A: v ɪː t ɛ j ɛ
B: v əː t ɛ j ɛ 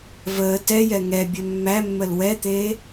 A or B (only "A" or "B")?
B